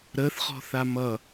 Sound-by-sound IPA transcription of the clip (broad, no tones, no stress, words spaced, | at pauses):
ɾəθχɔ̤θa mʌ